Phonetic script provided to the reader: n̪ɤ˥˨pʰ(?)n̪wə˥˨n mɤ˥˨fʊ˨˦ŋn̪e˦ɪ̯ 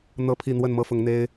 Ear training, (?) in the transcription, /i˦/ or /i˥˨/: i˥˨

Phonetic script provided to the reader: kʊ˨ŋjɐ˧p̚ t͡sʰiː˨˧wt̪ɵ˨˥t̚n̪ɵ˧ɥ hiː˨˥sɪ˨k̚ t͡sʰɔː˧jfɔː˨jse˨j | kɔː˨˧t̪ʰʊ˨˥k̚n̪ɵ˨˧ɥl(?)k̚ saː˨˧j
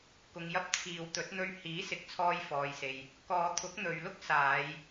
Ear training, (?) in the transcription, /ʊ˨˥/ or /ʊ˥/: ʊ˥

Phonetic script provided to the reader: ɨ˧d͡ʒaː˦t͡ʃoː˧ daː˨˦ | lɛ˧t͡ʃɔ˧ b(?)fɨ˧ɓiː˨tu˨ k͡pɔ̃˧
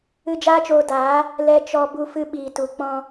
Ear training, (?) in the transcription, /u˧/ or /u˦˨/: u˧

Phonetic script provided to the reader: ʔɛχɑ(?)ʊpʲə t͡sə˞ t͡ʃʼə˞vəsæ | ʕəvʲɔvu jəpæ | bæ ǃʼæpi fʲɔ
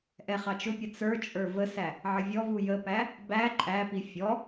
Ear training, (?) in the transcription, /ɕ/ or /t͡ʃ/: t͡ʃ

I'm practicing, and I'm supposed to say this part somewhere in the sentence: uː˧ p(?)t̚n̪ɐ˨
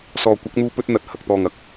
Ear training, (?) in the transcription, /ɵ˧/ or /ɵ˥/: ɵ˧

